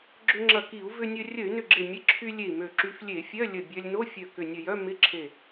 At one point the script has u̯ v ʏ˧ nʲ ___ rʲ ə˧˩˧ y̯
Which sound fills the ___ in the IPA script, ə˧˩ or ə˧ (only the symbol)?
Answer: ə˧